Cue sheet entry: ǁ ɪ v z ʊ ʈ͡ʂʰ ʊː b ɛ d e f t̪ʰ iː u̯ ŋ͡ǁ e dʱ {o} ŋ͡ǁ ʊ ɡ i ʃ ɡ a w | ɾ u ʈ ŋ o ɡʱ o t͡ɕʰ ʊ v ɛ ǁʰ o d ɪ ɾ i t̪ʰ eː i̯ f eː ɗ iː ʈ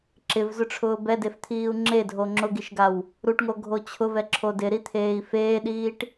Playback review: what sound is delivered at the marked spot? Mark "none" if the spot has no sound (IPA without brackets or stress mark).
o